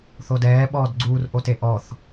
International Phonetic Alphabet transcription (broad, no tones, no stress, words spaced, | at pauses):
θodɛː ɓɔːdɡ͡ǀuːr ʔoteʔɔθ